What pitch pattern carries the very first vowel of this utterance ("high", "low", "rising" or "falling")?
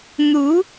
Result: rising